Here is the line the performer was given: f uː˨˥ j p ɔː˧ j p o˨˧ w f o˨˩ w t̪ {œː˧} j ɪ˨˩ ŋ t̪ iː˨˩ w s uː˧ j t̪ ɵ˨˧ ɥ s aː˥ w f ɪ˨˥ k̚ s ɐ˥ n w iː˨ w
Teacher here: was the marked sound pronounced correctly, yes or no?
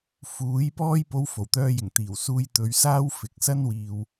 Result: yes